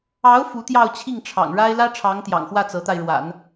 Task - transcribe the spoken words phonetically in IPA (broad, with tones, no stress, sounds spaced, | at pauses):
ɑ˧˥ ʊ̯ f u˧˥ t̪ j ɑ˥˧ ʊ̯ t͡ɕʰ i˥˩ ŋ ʈ͡ʂʰ ɑ̰˨˩ ŋ ɻ a˥ ɪ̯ l ä˥ ʈ͡ʂʰ ɑ˧˥ ŋ t̪ j ɑ̰˨˩ ŋ x w ä˥˩ t͡s ɤ˧˥ t̪ a˧ ɪ̯ ɻ w a̰˨˩˦ n